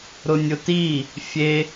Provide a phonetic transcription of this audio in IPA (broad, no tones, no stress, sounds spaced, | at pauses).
ɾ ʊ nʲ ʊ t i | fʲ e